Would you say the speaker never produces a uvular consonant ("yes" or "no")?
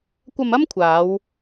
yes